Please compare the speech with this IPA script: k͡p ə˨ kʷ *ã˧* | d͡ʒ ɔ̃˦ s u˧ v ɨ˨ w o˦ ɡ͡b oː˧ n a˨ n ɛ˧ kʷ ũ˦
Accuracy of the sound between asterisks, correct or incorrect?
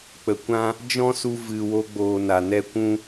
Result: correct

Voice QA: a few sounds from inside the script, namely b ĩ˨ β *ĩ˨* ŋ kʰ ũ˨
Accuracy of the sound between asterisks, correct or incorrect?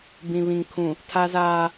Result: correct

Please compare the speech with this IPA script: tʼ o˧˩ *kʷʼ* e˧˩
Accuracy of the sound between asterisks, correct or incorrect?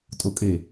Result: incorrect: kʼ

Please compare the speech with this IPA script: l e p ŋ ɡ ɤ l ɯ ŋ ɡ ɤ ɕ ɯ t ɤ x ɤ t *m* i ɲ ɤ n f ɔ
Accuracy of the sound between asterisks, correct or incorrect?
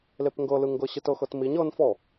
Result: correct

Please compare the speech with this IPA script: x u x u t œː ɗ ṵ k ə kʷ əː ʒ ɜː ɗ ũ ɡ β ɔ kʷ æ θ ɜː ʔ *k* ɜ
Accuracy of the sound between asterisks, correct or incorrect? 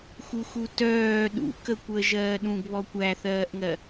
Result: incorrect: ŋ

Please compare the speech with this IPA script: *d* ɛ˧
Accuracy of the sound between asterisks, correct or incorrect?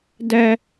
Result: correct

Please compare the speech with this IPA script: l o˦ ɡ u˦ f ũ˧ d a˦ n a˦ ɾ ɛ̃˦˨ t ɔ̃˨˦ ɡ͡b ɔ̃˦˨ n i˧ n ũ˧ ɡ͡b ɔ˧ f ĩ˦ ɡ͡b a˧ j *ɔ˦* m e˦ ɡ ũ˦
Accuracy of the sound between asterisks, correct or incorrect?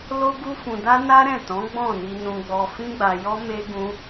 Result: correct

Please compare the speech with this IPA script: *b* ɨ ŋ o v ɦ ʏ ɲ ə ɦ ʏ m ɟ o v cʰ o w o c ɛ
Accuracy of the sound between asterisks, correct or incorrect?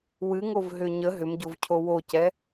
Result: incorrect: w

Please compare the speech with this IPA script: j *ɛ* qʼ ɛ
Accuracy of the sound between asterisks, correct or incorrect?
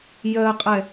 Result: incorrect: ɜ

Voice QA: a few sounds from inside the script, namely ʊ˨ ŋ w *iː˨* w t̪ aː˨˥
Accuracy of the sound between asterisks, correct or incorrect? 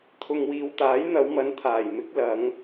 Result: correct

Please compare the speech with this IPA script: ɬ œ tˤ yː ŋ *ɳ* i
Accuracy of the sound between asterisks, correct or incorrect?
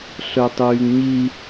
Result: incorrect: ɲ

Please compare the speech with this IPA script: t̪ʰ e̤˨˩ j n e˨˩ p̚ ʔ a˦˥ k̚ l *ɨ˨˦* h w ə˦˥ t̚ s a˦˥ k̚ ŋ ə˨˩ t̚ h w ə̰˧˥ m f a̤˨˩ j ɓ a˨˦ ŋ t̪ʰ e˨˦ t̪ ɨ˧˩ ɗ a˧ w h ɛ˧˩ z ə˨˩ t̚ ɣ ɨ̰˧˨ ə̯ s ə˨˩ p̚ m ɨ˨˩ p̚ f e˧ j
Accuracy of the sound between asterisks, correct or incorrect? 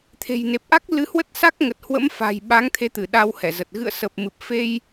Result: correct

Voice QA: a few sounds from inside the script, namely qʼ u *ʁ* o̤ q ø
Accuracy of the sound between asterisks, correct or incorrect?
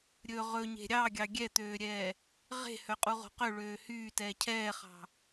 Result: correct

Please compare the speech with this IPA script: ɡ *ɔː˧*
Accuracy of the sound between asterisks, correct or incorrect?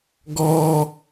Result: correct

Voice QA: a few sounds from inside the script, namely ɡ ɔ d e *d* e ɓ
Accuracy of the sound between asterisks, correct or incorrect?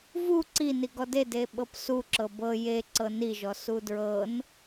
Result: correct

